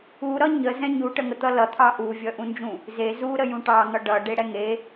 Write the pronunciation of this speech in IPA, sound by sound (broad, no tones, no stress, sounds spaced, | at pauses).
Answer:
u ɾ ʌ ɲ ə z ɛ̃ ɲ u ʈ ə ŋ ə t̪ ʌ l ʌ t̪ʰ ɑ ʔ u vʲ ʌ ʔ ũ n d͡ʒ ũ | z e z u ɾ ə j ũ ʈ ɑ ŋ ʌ ɖ ʌ ɖ e ɽ ɛ ŋ e